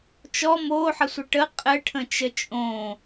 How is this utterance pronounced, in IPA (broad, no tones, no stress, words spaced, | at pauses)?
t͡ʃɔ moħəsʷə ʈə qʼɘʈʰə̃t͡ʃə t͡ʃʼõ